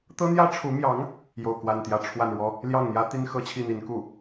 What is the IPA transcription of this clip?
t̪ɤ˥n̪jä˥ʈ͡ʂʰu˧˥mjɑ˧˥ŋ | jo˥˧ʊ̯kwa˥˧nt̪jä˥˧ ʈ͡ʂʰwa˥˩nɻwɔ˥ | ljɑ˥˩ŋn̪jä˥t̪i˥n xɤ˥t͡ɕʰi˥˩n̪i˧˥n ku˥˩

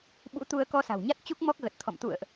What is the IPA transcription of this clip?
ɓṵ˧˥t̪u˧ə̯ kɔ˧sa̤˨˩wɲa˦˥t̚t͡ɕu˦˥k̚ mɔ˦˥k̚ɣə˨˩t̚t̪ʰɔ̰˧˨m t̪ṵ˧˨ə̯ʔ

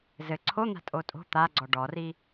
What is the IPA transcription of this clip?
zɘ ǀʰon̪a̤ tʼotʼo̤ t̪aɡ͡ǀɔ ɖɔri

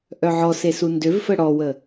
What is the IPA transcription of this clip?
ʔœʕɔse sundøvfə ɽɔwə

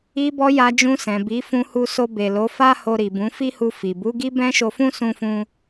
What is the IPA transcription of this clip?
i˧bɔ˧ ja˧d͡ʒũ˧sɛ̃˨bi˨˦ fũ˧hu˧so˧ be˨lo˨˦fa˦ho˧ ɾi˨bũ˨˦fi˦hu˧ fi˨ bu˨˦ɡi˦ bɛ̃˦ʃo˧fũ˦ sũ˧fũ˧

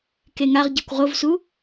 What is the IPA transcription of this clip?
keŋaʁɟɛkʷ ʁovsu

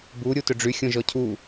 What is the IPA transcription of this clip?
bu ɾʲutʏɖ͡ʐy xʲõʒɔcʰu

